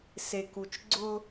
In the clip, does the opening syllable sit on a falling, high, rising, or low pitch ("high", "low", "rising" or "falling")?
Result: low